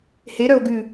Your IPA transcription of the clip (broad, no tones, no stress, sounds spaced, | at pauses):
h e ɾ œ o̯ ɡ ʉ